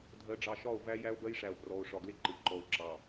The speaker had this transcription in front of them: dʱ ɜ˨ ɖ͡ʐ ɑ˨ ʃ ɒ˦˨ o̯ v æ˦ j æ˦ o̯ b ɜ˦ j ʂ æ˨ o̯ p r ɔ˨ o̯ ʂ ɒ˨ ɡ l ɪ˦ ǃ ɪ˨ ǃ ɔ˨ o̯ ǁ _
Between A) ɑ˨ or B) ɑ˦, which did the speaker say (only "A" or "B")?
A